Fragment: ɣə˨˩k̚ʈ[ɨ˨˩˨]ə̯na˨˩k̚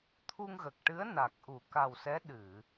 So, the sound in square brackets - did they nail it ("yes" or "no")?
no